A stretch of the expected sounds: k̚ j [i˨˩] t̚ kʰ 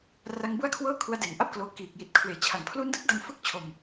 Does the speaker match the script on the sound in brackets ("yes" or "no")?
yes